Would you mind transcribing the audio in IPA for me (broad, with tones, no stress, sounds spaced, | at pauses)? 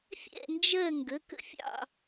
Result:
fʲ ɛ̰˥˨ n d͡ʒ ɜ˥˨ ŋ ɡ ə˩˧˩ k ə̰˥˨ fʲ ɑ̰˥˨